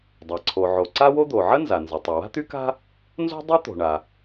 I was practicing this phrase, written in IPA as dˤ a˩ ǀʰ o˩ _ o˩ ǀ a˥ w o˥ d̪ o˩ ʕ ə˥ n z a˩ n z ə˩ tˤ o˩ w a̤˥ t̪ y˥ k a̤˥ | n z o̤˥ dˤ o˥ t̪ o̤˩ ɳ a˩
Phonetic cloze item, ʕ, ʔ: ʕ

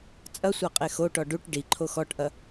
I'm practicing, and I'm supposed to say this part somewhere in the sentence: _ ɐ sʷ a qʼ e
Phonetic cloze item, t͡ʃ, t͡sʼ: t͡sʼ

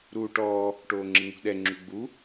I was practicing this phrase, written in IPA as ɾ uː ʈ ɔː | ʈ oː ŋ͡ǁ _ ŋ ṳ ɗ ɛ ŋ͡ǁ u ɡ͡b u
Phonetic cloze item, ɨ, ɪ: ɨ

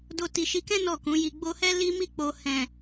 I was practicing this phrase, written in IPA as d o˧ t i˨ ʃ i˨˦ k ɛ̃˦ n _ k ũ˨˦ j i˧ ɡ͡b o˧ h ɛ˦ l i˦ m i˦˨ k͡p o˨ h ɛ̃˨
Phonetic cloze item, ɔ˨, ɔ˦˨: ɔ˦˨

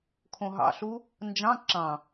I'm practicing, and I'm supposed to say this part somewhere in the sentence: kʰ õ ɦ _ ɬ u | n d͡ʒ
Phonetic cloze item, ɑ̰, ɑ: ɑ̰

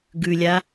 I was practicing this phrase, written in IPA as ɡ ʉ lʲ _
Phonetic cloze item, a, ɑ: a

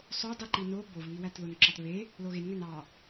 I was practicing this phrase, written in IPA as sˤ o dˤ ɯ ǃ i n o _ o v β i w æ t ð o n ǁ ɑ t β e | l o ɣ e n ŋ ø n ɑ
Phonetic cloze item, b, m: b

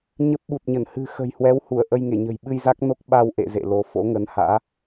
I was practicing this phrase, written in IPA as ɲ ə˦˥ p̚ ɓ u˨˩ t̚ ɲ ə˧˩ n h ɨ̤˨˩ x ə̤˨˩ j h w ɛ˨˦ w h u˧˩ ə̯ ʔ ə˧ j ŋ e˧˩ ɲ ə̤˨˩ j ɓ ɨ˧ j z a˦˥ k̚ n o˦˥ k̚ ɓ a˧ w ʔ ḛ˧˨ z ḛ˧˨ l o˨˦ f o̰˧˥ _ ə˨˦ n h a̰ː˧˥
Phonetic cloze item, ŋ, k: ŋ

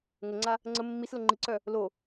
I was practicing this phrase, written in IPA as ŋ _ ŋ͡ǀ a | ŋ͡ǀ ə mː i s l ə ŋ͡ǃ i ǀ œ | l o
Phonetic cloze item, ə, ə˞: ə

